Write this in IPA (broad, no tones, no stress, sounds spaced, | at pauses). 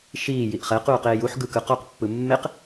ʃ iː j i ʔ χ ɛ q uː q eː j u ħ ɡ ɯ k ɯ q ɔ q pː ɯ mː e q